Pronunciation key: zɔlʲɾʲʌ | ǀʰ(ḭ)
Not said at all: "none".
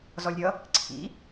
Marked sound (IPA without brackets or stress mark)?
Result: ḭ